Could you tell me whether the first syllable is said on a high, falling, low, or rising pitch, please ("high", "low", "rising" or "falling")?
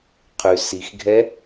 low